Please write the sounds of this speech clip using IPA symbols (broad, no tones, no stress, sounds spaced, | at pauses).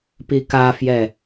p i k a f j ɛ